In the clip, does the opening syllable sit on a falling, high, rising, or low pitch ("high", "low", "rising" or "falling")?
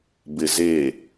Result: low